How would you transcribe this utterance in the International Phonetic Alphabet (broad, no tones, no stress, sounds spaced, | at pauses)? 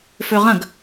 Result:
f ø ʁ ɐ̃ ɡ